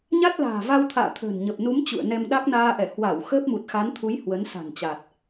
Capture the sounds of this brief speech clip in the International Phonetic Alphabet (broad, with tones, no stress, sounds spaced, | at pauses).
ɲ a˦˥ t̚ l a̤ː˨˩ v a˧ w t̪ʰ a̰ː˧˨ t̪ʰ ə̤ː˨˩ n ɲ ə˨˩ p̚ n u˨˦ m t͡ɕ ṵ˧˨ ə̯ n ɛ˧ m ɗ a˦˥ k̚ n aː˧ ʔ ɛ˧˩ h w a˧˩ w x əː˦˥ p̚ m u˨˩ t̚ x a˨˦ n t̪ʰ u˨˦ j h w ə˨˦ n s a̤˨˩ n t͡ɕ a˨˩ t̚